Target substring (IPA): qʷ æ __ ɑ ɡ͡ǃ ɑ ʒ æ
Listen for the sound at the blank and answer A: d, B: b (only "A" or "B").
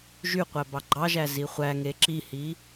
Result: B